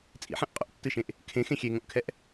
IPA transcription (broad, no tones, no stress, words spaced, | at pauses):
t͡sʼḭħɛ̃ʔ qʼo̰ʔtːɨʃẽʔ | kʰẽxẽ xʲeŋõʔkʰɛʔ